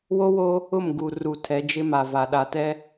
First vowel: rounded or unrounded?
rounded